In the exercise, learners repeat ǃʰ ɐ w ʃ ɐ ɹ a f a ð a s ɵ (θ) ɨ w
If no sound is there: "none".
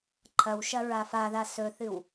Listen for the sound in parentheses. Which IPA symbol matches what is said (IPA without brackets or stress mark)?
θ